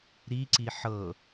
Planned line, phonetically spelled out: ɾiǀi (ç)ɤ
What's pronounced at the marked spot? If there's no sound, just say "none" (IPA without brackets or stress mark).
ħ